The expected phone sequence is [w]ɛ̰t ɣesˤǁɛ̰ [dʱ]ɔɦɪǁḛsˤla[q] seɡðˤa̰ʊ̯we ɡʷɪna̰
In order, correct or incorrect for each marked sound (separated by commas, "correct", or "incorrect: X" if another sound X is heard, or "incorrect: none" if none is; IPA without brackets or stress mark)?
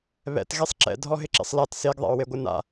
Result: incorrect: β, correct, incorrect: t